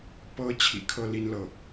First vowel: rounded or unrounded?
unrounded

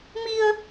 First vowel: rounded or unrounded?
unrounded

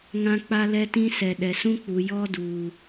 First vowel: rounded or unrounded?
unrounded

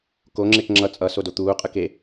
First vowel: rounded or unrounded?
rounded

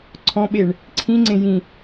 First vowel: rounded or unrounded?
rounded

